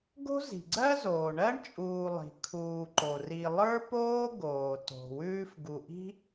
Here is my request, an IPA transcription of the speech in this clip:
ɡ o̤˥ z i̤˩ ɡ͡ǀ ɜ˥ z oː˩ ɳ ɜ˥ ɳ t͡ʃʼ uː˨ lˠ i̤˩ kʰ uː˨ ǃ o˩ r i˨ lˠ ə˞˥ p oː˥ ɡ oː˩ t o̤˩ w ʉː˦ f ɡ u˨ ʔ i̤˥

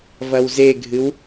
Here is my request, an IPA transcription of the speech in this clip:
v ɐ w z e ɡʱ ɨ w

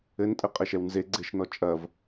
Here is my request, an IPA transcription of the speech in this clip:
ɘ n tʼ ɘ qʼ ɘ ʃ ɛ w n z e ɡ͡ǀ e ʃ n ɔ t͡ʃʼ ɐ v

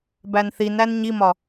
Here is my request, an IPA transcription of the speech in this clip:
b æ n θ i n æ n ɲ i m ɒ

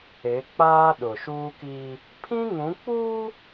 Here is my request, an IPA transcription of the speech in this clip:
e˨˦ k͡p aː˦ ɗ ʊ˨ ʃ uː˦ k i˦ | pʰ ĩ˦ ŋ ũ˨˦ k͡p uː˦

